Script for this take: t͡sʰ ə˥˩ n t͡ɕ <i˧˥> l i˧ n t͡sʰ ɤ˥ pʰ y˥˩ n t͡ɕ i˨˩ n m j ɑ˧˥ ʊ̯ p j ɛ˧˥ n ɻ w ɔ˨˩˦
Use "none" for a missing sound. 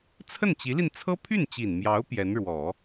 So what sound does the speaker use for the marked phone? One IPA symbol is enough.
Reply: i˧˥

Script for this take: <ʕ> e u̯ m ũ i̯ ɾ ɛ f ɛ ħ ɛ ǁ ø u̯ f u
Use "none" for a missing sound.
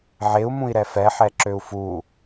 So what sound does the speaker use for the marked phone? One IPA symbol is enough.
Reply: ʕ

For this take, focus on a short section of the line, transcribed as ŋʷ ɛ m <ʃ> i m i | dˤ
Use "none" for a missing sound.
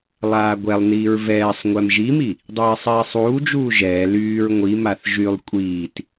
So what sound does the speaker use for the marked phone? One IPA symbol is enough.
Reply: ʒ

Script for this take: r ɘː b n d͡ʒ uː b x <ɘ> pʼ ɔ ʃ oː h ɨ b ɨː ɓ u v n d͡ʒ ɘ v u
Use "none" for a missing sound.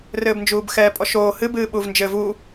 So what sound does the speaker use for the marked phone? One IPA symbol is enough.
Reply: ɛ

